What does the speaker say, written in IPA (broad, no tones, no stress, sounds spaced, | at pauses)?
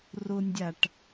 r ʊ nʲ dʲ a ʈ